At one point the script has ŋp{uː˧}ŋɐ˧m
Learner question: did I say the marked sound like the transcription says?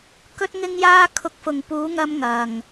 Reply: no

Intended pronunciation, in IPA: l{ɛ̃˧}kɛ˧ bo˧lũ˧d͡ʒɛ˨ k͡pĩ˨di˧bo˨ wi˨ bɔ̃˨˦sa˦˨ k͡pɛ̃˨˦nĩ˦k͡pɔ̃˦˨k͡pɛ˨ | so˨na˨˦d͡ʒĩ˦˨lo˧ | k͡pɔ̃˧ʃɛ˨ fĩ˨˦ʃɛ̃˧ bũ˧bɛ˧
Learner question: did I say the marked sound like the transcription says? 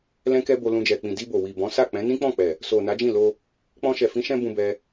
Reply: yes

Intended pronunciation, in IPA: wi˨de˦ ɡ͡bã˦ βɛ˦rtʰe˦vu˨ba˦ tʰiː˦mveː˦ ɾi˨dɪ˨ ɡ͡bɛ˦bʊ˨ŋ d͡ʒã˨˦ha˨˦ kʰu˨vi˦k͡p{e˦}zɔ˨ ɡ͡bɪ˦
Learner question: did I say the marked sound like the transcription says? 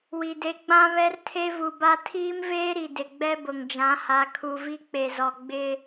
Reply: no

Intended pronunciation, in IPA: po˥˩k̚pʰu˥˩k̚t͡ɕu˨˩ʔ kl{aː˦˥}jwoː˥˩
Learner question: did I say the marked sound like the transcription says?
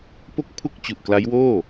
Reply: no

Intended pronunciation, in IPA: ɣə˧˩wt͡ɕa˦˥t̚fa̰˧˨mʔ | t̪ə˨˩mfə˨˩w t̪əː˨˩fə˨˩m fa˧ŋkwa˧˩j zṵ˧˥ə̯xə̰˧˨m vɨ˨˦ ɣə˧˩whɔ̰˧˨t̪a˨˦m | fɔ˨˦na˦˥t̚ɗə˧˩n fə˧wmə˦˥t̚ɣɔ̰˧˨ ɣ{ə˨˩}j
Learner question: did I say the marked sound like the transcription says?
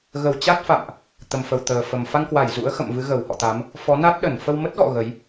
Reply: no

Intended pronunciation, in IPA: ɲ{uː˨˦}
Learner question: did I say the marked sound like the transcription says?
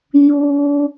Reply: no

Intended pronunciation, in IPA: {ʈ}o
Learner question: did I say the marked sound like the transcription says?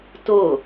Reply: no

